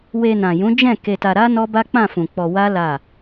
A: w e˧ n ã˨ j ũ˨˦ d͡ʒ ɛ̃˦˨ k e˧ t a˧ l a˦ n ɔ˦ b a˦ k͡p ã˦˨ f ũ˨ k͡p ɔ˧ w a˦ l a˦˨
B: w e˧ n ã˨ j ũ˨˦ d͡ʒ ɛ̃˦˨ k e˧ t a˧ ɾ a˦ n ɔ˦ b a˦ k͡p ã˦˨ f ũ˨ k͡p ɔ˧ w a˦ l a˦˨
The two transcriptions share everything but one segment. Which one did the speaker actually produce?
B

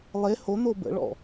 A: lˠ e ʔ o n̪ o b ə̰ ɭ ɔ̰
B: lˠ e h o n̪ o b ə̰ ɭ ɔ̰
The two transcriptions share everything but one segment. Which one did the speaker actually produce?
B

